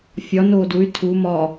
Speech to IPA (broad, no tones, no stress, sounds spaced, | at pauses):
fʲ ɒ n oː d u y̯ tʰ u m ɒ